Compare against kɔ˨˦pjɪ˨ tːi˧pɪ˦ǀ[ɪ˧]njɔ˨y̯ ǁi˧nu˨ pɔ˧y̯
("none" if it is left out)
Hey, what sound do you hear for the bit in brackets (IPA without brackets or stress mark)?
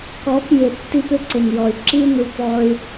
ɪ˨